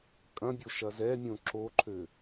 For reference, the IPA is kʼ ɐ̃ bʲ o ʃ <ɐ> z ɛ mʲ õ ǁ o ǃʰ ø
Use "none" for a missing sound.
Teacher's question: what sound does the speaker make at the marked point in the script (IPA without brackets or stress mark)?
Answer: ɐ